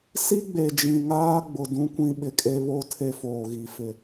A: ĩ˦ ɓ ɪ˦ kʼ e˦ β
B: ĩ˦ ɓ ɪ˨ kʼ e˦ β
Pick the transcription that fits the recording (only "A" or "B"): B